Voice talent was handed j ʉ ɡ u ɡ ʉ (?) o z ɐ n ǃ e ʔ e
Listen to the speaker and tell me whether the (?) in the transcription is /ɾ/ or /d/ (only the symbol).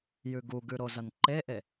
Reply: ɾ